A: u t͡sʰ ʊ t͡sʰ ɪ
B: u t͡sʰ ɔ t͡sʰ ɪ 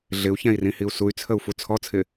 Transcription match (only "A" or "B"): B